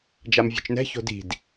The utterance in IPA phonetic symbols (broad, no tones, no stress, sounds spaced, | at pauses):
d͡ʒ a m vʲ o̤ t͡ʃ n ɛ̤ ç o̤ d i̤ d